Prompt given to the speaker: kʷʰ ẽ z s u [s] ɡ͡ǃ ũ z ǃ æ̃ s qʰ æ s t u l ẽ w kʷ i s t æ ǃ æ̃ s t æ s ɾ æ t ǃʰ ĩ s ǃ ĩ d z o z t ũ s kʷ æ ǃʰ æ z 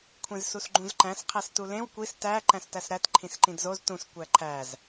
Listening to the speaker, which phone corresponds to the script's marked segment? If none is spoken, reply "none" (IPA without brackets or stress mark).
s